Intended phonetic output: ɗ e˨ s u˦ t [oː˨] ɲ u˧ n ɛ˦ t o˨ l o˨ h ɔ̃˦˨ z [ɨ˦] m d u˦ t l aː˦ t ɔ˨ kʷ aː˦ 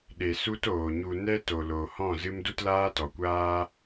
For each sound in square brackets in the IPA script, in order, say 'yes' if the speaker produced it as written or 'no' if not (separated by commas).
yes, yes